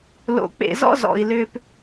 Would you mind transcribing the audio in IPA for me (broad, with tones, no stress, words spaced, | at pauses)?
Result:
lo̰˩k͡pḛ˩zɔ̰˦ zɔ̰˩i̯lʏː˨p